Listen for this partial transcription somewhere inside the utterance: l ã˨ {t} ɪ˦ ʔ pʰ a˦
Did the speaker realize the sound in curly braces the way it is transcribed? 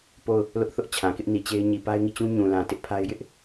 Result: yes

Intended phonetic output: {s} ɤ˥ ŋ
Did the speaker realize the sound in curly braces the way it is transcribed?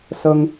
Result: yes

